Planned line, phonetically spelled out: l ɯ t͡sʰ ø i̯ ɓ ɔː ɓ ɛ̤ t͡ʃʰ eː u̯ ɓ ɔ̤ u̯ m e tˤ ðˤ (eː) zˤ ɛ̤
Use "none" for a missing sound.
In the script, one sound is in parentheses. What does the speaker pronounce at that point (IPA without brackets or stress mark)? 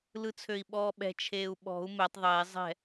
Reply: eː